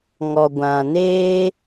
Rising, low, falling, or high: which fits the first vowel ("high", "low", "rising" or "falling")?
low